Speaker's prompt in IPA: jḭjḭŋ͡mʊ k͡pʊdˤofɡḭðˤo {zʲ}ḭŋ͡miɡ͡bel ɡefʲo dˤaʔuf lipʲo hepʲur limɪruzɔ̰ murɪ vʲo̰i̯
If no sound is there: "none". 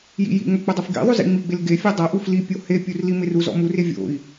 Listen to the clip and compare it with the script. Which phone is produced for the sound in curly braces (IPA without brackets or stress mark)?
z